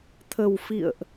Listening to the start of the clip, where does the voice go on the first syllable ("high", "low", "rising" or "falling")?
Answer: low